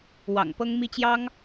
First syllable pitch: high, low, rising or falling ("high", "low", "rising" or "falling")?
low